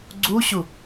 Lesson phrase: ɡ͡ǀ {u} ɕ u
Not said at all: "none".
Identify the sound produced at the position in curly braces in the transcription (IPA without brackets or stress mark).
u